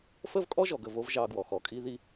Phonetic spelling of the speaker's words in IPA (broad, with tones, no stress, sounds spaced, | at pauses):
f ə˦ v kʼ ɔ˦ ʒ ɔ˨ ɡ ə˦˨ v o˧ v ʒ ɑ˧ ɡ w ɔ˨ x ɔ˨ kʼ i˦ ð i˦